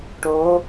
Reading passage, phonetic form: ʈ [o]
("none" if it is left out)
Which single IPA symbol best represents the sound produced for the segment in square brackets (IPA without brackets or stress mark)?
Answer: o